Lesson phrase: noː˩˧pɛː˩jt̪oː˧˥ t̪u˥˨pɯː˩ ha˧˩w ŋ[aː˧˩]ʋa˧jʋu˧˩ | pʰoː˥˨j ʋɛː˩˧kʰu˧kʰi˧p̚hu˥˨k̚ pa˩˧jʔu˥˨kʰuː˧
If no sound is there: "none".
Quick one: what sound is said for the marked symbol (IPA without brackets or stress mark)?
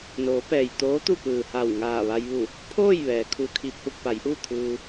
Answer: aː˧˩